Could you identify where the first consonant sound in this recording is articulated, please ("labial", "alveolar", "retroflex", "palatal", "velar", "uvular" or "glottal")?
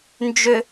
alveolar